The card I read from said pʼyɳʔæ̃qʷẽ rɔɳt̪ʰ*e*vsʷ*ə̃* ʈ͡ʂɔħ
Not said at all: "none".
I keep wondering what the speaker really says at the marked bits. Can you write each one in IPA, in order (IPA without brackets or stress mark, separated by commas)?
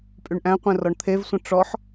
e, ə̃